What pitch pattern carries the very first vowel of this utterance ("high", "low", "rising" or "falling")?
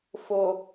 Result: low